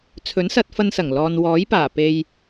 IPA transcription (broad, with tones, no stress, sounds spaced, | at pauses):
t͡sʰ ɵ˨˥ n s ɐ˧ t̚ f ɐ˧ n s ɐ˨˩ ŋ l ɔː˨ n w ɔː˨˥ j p aː˨˩ p e˨ j